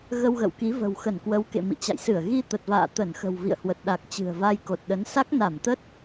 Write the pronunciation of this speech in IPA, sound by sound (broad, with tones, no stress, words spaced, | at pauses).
ɣə˧wɣə̰˧˨wki˨˦ və̤˨˩wxə˧˩nkwə˨˦wkḛ˧˨ mḭ˧˨t͡ɕa̰˧˨jsɨ˧˩ə̯ ɣi˧t̪ə˨˩t̚va̰ː˧˨ t̪ə˧˩nxə̤˨˩w vḭ˧˨ə̯hwə˨˩t̚ɗa˨˩k̚ t͡ɕɨ̤˨˩ə̯va˧j ko˨˩t̚ɗə˨˦n sa˦˥k̚na˧˩mt̪ə˦˥t̚